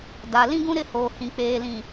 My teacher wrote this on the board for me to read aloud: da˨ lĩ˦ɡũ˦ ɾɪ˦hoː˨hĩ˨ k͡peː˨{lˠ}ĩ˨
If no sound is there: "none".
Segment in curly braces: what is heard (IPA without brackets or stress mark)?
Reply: l